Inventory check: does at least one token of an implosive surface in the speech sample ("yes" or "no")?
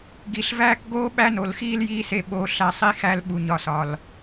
yes